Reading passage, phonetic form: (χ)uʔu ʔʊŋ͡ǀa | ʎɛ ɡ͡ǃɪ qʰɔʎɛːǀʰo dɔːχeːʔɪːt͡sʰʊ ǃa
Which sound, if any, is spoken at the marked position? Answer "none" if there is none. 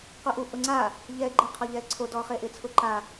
q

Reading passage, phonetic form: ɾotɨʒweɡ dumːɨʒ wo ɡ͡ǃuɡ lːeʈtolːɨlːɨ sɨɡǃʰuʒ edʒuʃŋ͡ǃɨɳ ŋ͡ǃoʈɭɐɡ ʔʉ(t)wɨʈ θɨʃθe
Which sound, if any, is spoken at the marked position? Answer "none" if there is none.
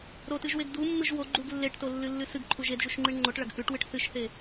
ʈ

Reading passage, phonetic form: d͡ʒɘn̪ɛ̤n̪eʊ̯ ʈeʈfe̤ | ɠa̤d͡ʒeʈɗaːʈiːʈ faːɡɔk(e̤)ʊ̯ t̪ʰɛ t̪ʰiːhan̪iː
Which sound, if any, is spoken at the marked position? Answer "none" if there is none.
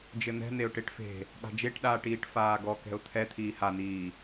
ɛ̤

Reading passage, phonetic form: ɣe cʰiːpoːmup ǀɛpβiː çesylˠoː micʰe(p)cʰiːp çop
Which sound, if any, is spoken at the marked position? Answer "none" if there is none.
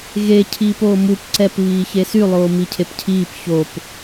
p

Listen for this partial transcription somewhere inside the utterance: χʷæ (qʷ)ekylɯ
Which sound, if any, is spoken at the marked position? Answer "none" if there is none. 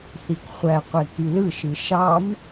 qʷ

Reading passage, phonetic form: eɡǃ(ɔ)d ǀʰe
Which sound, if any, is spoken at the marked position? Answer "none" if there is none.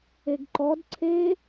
ɔ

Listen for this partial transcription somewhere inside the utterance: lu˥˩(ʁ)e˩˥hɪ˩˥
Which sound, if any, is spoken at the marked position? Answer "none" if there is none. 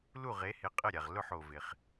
ʁ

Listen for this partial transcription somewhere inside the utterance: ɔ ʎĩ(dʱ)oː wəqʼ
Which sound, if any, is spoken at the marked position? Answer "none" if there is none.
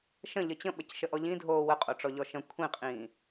dʱ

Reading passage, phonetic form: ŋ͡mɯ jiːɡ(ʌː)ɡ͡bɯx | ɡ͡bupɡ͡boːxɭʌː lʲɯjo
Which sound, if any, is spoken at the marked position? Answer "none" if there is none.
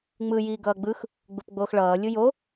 ʌː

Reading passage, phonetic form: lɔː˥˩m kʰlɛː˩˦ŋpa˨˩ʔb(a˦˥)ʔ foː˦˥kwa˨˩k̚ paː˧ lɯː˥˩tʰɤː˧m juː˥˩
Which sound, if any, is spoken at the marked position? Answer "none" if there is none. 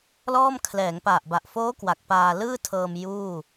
a˨˩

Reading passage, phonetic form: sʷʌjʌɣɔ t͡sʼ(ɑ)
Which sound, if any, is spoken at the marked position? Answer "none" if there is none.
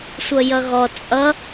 ʌ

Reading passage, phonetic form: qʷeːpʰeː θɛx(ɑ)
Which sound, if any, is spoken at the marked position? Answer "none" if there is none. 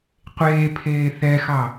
ɑ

